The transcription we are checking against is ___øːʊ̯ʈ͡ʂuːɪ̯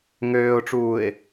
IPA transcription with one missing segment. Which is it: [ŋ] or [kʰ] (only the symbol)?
ŋ